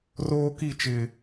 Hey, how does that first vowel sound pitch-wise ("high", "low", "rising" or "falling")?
high